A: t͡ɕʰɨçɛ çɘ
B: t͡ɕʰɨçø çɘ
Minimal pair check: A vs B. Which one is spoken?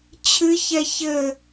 A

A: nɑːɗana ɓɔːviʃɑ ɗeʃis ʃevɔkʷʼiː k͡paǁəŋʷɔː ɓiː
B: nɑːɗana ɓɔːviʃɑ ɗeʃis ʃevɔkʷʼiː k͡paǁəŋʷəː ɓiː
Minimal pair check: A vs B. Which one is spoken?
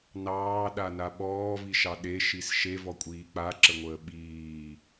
B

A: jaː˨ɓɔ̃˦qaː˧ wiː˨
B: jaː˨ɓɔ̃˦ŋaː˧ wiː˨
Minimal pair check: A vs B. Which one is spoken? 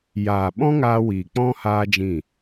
B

